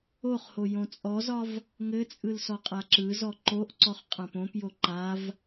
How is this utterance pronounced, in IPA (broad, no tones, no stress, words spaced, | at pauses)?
oχho jõt͡sʼɔzɒv | ŋɘt͡sʼɯl sɔqʼaǁɯzɔ ǃoʔ ǀɔχqʼãpõpjo ǃav